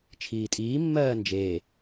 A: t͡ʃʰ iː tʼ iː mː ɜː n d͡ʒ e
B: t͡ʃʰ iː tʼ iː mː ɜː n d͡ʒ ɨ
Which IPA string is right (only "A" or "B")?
A